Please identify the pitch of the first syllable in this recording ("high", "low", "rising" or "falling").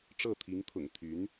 falling